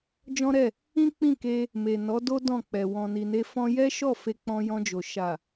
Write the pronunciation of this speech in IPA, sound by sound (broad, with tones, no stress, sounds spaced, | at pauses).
d͡ʒ ɔ̃˦ ɾ ɛ˦˨ | ĩ˦ k͡p ĩ˦˨ k e˧ | m e˨ n ɔ˨˦ d o˦ d ɔ̃˦˨ k͡p ɛ˨ w ɔ̃˨ n i˨ n e˧ f ɔ̃˧ j ɛ˦ ʃ ɔ˦˨ f e˧ k͡p ɔ̃˧ j ɔ̃˧ d͡ʒ o˨ ʃ a˨